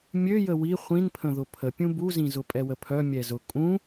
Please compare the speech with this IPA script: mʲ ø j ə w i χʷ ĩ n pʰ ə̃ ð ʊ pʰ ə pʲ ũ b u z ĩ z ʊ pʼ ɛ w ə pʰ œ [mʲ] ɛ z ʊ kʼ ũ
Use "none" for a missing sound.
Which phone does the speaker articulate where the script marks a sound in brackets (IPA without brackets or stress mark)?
mʲ